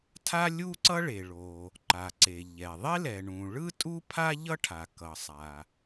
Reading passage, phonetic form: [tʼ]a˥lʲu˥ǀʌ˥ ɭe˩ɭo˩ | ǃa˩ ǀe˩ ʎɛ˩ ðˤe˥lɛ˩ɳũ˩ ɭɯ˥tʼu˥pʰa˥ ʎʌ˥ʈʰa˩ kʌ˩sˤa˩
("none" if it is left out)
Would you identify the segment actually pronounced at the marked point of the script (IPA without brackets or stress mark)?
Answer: tʰ